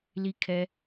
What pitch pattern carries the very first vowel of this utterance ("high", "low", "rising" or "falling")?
high